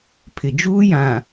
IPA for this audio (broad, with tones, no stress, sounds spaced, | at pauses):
pʰ ɪ˨ d͡ʒ uː˦ j ã˨